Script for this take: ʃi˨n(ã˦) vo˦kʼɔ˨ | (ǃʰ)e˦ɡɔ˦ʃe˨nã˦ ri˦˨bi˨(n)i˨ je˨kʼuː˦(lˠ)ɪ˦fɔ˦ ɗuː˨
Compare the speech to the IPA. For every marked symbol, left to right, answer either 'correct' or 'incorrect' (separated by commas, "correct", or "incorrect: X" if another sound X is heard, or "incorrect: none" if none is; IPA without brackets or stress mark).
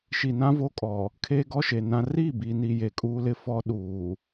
correct, incorrect: kʰ, correct, incorrect: l